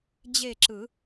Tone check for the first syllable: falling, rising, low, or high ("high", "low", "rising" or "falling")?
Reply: falling